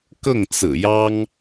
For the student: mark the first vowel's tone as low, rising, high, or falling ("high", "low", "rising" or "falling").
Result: falling